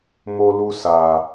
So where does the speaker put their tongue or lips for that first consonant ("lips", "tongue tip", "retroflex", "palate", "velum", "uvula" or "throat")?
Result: lips